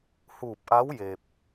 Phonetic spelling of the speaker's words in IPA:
h uː˧˩ p̚ ʔ a˧˥ w j e˧ p̚

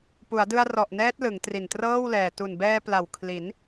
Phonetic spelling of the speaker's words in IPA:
p u˩˦ a̯ d ɯ˧ a̯ r ɔ˨˩ ʔ n ɛː˦˥ t̚ l ɯ˩˦ ŋ t r i˨˩ n t r ɤː˥˩ w l ɛː˨˩ t u˨˩ n b ɛː˧ p l a˨˩ w kʰ l i˩˦ n

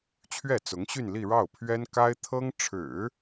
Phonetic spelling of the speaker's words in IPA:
t͡ɕʰ ɥ ɛ˥˩ t͡s ʊ˧˥ ŋ ɕ y˥˧ n l i˥˧ ɻ ɑ˥˩ ʊ̯ pʰ ɥ ɛ˥ n k a˥ ɪ̯ t̪ʰ ɤ˥ ŋ ʈ͡ʂʰ ɻ̩˨˩˦

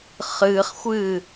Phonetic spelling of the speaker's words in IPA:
χ ɨː χ xʷ ɨː

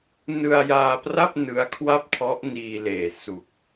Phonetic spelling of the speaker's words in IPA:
n ɯ˧ a̯ j aː˧ p r a˥˩ p̚ n ɯ˦˥ a̯ kʰ w a˥˩ p̚ tʰ ɔ˦˥ ʔ n iː˧ l eː˨˩ s u˨˩ k̚

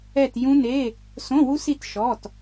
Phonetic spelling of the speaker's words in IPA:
ɛ˦˨ t j ũ˦˥ n e˧˥˧ | s õ˧˥˧ w u˦˥ s i˦˨ t ʃ ɔ˩˧˩ t

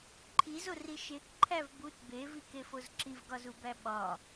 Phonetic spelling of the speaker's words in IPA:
ǃʰ i z o r i ʃ e k ǃʰ æ v b u t b e v i k e f o z ǁ i v ɡ ɒ z u b æ ɓ ɒ

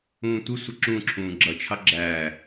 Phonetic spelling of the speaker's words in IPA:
ũː tʷ ɪ sʷ ə ǁ ũ ǁʰ ũː ɡ͡ǁ ʌ t͡ʃʰ ɑ ɡ͡ǁ æ

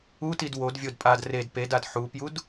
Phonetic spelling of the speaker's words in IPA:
u t i d w o d vʲ o d pʼ a d r e d p e d a d ħ u p j u d

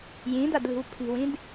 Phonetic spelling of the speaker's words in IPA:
j ĩ d a d l i̤ w pʰ i̤ w ĩ d

